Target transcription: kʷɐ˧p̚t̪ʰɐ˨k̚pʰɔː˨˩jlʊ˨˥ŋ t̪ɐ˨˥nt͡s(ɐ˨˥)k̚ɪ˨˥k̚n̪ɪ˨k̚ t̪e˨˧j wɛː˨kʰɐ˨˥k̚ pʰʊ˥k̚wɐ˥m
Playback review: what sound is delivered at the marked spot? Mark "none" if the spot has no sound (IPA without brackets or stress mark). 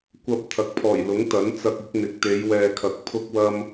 ɐ˧